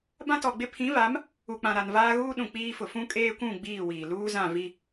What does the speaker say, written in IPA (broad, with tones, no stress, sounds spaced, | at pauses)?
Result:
b ã˦ t ɔ˨ ɡ͡b ɪ˦ pʰ ĩ˨˦ v a˨˦ m | u˨ k͡p ã˨ ɾ a˨ n v aː˦ ɣ uː˦ ɗ ũ˨ k͡p iː˦ f ʊ˨ f ũ˦ kʼ eː˦ kʷ ũ˦˨ ɡ͡b iː˦˨ w iː˨ l uː˦ z ã˦˨ v i˦